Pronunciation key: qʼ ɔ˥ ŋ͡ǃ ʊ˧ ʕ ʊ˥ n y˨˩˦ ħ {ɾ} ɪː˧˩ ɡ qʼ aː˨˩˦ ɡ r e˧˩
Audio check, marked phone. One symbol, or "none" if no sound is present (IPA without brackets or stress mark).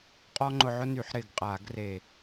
ɾ